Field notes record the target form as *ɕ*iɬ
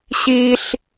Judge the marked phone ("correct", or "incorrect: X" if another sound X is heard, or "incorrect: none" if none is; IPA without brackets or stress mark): correct